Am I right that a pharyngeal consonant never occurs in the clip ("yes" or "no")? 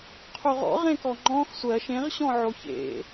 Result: no